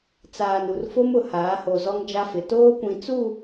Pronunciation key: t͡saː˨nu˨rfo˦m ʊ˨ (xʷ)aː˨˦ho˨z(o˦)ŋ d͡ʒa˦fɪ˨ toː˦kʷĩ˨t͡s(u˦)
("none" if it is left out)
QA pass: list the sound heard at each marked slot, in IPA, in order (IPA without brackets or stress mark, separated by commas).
h, ɔ˦, u˦˨